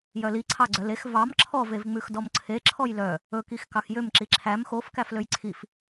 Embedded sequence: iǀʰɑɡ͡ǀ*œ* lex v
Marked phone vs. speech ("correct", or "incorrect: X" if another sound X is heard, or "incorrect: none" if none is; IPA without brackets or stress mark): correct